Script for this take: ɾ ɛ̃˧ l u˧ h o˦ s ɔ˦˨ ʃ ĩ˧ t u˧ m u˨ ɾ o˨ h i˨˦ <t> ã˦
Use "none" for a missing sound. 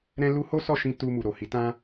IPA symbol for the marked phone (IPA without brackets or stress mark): t